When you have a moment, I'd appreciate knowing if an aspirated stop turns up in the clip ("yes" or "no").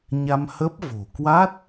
no